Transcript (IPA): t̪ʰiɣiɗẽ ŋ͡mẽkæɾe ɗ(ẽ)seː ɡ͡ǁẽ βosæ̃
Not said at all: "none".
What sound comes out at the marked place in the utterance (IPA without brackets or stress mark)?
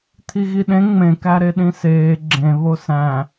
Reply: ĩ